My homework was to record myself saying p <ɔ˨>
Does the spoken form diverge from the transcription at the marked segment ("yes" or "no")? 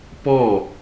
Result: yes